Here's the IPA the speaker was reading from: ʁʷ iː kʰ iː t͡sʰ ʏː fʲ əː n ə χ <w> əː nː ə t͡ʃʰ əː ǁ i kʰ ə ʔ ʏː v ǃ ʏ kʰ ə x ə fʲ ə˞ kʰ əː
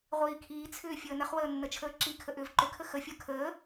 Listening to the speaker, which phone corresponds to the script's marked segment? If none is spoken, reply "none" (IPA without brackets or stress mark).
w